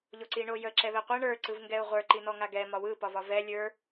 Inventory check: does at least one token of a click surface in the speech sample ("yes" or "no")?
yes